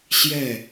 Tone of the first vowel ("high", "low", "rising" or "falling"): falling